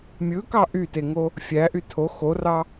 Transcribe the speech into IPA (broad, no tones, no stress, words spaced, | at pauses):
mʲɯkɑ ʔyteŋo | fʲæʔy tʰo xorɑ